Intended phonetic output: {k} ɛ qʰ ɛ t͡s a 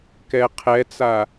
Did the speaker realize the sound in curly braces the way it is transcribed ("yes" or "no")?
yes